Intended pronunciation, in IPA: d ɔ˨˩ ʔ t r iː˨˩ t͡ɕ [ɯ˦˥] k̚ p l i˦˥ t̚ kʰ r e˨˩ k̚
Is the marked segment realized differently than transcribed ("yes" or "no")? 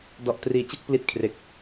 yes